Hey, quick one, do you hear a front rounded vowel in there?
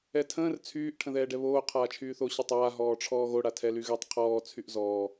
yes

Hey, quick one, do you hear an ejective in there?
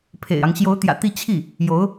no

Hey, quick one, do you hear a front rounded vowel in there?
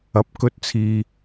no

